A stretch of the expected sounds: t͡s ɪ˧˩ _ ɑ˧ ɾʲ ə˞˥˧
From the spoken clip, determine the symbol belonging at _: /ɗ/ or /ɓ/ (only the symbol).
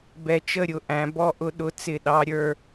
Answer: ɗ